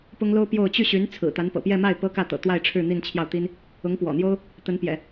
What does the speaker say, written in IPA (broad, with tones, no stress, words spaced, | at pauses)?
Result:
pʊ˥ŋlo˥ʊ̯pjo˥˧ʊ̯ t͡ɕy˥˩ɕy˧˥n t͡sʰɹ̩˨˩t̪a˧˥npɤ̰˨˩ pjɛ˥˧ma˥˩ɪ̯ pɤ˥kä˥˩t̪ɤ̰˨˩ t̪wa˥˧ɪ̯ʈ͡ʂʰɻ̩˥˧ n̪i˥˧nt͡ɕʰjɑ˥˩ʊ̯ t̪i˥n | ʊ˧˥ŋpwɔ̰˨˩n̪jo˥ʊ̯ | t̪ə˧˥npjɛ̰˨˩˦